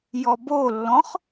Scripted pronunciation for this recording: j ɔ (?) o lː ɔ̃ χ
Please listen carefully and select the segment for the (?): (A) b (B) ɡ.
A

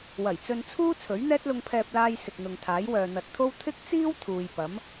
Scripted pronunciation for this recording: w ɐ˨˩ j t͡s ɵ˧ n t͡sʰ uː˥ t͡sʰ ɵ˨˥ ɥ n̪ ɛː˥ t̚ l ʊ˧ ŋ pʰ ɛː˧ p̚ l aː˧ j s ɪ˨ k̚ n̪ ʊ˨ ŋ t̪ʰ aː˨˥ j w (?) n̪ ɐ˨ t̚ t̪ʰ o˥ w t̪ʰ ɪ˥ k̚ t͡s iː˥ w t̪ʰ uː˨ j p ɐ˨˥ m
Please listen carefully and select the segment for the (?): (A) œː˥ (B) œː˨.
B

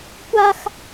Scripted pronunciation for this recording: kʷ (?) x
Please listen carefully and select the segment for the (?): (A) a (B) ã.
A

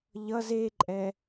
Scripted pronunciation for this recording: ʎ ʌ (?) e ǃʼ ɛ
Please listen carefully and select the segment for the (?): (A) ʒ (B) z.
B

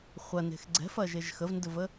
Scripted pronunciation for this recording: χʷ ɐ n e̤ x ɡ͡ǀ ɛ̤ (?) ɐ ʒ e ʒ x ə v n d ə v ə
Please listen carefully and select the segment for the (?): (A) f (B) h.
A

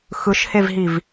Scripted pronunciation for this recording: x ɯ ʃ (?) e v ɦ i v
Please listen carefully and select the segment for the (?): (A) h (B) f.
A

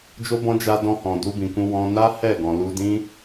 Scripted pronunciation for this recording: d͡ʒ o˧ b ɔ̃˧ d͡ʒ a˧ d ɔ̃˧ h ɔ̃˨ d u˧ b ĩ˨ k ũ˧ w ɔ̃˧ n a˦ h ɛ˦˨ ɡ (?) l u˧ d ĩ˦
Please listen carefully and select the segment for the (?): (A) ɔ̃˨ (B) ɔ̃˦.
A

